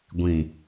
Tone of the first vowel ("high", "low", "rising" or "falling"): low